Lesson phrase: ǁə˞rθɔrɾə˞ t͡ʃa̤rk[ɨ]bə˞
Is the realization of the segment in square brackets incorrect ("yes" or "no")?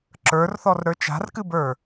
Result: no